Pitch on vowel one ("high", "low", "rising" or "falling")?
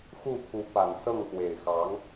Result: falling